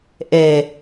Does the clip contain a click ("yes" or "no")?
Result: no